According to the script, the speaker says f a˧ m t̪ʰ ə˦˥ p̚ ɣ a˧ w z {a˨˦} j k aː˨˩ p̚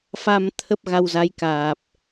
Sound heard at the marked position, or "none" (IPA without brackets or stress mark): a˨˦